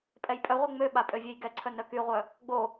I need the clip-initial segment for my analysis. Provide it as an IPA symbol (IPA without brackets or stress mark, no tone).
pʼ